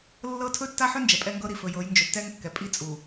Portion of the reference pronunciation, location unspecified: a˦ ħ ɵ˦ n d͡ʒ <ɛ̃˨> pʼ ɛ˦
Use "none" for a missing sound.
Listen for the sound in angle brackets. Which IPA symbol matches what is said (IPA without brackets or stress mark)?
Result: ɛ˨